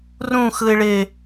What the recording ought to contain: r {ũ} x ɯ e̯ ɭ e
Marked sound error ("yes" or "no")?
no